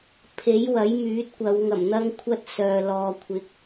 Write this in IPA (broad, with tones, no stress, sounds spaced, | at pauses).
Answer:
pʰ e˨˥ j w ɐ˨˥ j m yː˨˥ t̚ kʷ ɐ˨˧ w ŋ ɐ˨˩ m n̪ ɐ˧ ŋ kʷʰ ɐ˧ t̚ s œː˨ l ɔː˨ kʷʰ ɪ˨˥ k̚